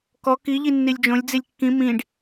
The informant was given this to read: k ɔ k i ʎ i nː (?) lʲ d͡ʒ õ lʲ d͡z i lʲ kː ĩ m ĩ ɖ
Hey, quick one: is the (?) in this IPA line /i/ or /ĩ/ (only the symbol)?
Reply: i